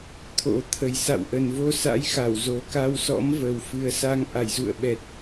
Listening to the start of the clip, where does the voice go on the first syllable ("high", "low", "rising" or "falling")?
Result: rising